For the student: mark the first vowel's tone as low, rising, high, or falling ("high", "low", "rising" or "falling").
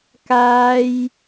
high